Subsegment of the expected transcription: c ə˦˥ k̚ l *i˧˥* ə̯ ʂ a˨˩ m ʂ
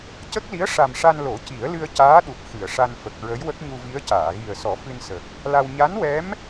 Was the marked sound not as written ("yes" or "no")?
no